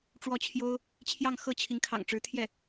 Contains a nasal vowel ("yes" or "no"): no